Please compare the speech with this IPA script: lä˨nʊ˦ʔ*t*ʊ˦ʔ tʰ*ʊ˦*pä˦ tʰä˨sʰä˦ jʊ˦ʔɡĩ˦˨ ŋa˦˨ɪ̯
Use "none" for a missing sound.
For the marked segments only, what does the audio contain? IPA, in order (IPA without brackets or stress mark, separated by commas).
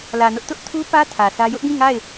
t, u˦